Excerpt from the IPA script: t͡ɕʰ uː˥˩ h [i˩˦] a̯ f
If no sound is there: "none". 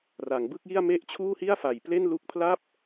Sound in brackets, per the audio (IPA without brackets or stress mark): i˥˩